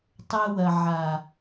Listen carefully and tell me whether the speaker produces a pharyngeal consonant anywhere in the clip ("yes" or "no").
yes